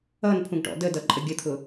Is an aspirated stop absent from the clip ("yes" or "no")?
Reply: no